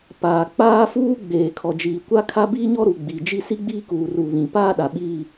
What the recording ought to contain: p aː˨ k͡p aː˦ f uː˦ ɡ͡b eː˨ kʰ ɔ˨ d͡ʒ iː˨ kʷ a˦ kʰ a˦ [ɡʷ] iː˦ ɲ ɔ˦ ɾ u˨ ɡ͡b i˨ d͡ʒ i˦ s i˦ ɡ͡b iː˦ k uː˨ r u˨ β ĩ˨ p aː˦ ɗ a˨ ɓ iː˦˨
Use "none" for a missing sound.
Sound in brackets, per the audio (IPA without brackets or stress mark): b